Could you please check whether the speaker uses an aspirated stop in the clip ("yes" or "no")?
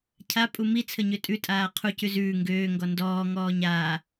yes